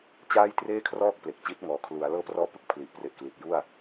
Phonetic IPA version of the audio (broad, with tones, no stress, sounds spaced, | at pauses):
t͡ɕ aː˥˩ j t r eː˥˩ kʰ r ɔː˥˩ k̚ p l e˨˩ k̚ t͡ɕ i˦˥ t̚ ŋ ɔː˨˩ kʰ l u˩˦ a̯ l ɤː˥˩ p r ɔː˥˩ p ɯ˦˥ k̚ pʰ l i˨˩ ʔ p r e˨˩ ʔ k l i˨˩ t̚ j u˥˩ a̯